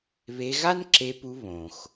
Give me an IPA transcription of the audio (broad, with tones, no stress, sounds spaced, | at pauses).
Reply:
β e˧ ɣ a˥ n ǁ e˧ p u˧ β õ˩ x